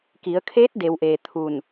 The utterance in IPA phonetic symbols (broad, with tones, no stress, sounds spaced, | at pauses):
k i˩˧ ə̯ kʰ eː˧˥ t̚ d e˩˧ w ʔ eː˩ t̪ʰ u˧˩ n